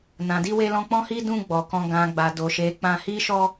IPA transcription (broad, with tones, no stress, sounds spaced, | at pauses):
n ã˨ d i˧ w e˧ l ɔ̃˧ k͡p ɔ̃˦ h i˦ d ũ˦˨ ɡ͡b ɔ˨ k ɔ̃˧ ɡ ã˨ ɡ͡b a˨ d o˨ ʃ e˨˦ k͡p ã˧ h i˦ ʃ ɔ˦